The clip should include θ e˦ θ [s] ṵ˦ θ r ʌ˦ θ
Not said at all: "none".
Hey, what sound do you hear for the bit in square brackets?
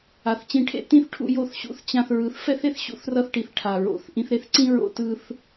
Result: ɕ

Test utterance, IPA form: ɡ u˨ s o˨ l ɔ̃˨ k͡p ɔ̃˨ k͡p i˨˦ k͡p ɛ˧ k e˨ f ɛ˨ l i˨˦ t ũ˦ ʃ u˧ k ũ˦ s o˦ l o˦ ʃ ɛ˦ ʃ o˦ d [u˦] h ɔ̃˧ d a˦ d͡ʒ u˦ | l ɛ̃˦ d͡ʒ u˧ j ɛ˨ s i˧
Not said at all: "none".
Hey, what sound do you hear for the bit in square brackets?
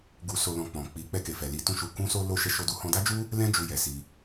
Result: u˦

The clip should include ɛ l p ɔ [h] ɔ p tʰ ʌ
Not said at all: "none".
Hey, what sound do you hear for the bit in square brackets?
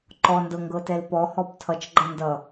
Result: h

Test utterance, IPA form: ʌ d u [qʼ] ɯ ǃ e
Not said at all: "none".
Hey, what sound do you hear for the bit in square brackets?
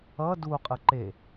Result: qʼ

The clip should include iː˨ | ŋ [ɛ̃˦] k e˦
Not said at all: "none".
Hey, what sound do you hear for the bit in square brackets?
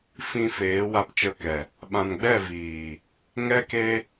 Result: ɛ˦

